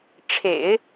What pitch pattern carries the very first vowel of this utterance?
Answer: low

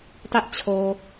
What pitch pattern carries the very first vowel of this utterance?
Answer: high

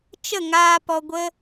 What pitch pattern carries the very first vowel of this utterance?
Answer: falling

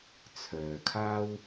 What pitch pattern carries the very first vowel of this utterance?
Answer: low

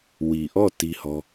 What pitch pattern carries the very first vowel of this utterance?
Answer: low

